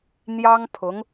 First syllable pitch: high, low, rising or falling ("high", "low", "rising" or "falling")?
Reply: high